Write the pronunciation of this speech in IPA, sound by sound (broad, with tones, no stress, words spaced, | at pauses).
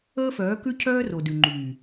əː˦fœː˨˦kʉ˦ cʰœː˦ ro˨dʉ˨ŋ͡ǃyː˨